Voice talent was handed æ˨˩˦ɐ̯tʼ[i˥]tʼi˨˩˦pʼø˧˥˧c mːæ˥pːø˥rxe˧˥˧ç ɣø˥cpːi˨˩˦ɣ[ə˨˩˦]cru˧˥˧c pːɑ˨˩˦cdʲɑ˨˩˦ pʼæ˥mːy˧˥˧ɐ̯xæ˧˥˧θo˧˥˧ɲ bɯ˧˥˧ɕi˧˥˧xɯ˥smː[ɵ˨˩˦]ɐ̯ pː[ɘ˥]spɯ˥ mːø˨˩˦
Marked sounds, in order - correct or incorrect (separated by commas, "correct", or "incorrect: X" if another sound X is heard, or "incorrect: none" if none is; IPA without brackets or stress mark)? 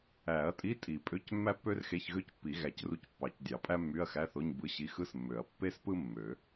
incorrect: i˧˥˧, incorrect: æ˨˩˦, incorrect: ø˨˩˦, incorrect: e˥